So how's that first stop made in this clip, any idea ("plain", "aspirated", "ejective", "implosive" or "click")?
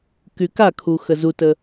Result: plain